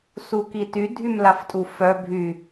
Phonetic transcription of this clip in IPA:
s u k i t y dʱ y m l a f tʼ u f œ bʱ y

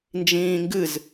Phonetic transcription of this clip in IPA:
n d͡ʒ ĩː ŋ ɡ ɨ z

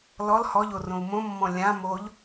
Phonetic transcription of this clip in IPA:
l ɔ l h ɔ ʎ o r õ u̯ m õ mː ɔ̃ lʲ ã m o ʎ

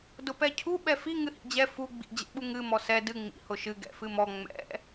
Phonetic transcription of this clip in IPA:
d ʊ p ɛ cʰ u ɓ ɛ f i ŋ ɨ h ḭ d͡ʑ ɛ f u ɡ͡b ḭ d͡ʑ ɛ̰ ɓ u ŋ ɨ m ɔ s ɛ d ɨ ŋ͡m ḭ h ʊ ʃ ɨ ɡ ɛ̰ f ɨ m ɔ ŋ͡m ɛ̰

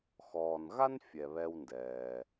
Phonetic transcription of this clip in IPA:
x ɔː˩ n ɣ a˥ n fʲ ɛ˩ β ɛ˧ w n d ɛː˩

